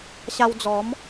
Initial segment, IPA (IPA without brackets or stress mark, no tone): ɕ